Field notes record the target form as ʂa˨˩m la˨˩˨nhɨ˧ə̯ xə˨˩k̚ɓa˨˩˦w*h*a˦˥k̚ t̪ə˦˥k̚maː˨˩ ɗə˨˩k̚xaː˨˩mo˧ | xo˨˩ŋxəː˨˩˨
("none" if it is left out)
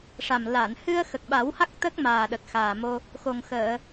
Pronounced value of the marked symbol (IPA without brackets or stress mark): h